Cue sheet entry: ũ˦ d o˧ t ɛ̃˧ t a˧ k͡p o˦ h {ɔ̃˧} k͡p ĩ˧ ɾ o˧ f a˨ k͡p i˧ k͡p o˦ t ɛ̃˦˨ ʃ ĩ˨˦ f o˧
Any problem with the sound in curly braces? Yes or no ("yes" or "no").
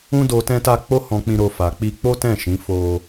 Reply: no